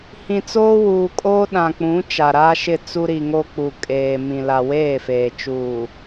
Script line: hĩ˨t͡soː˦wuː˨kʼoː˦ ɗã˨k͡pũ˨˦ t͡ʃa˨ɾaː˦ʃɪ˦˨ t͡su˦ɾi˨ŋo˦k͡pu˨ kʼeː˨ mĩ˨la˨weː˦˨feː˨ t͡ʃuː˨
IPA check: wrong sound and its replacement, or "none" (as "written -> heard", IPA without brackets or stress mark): none